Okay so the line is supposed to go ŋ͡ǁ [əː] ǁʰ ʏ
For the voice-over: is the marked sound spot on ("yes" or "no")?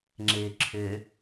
no